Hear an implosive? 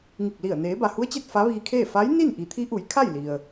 no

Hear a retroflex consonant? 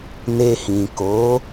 no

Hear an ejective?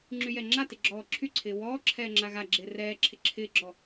no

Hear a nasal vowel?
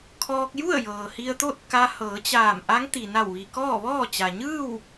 no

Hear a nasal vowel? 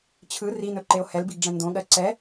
yes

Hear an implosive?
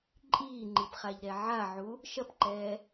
no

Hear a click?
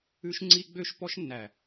yes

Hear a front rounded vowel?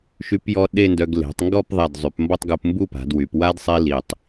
yes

